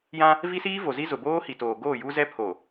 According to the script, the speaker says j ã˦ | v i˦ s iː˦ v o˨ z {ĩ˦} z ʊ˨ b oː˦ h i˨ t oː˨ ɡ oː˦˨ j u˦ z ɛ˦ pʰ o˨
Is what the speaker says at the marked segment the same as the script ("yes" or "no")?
no